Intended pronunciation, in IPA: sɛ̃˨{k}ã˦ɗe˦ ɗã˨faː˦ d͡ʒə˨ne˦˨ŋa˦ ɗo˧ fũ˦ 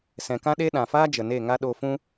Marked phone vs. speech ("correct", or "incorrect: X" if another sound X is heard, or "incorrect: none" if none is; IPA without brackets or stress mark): correct